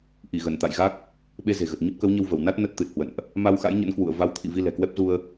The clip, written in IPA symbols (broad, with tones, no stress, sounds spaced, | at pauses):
ʔ i˧˩ ɣ ə˧˩ n t̪ a̰˧˨ j ɣ a˦˥ k̚ | ɓ e˧ z e̤˨˩ ɣ ə˨˩ t̚ ɲ ə˦˥ p̚ k ə˨˦ w ɲ ə˧ w v ə˧˩ w n a˦˥ t̚ n ə˦˥ t̚ t̪ ɨ˨˩ t̚ h w ə̰˧˨ n ʔ | m a˧ w x a̰˧˥ j ɲ ə̰˧˥ n k w ṵ˧˨ ə̯ v a˨˦ w t̪ʰ ḭ˧˨ v i˧ l ɛ̤˨˩ k w ɛ˦˥ p̚ z u˧ ə̯